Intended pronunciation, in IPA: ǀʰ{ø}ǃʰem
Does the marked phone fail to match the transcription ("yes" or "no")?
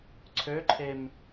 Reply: no